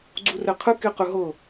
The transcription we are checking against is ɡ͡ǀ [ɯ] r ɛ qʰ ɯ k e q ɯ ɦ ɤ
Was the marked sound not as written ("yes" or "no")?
yes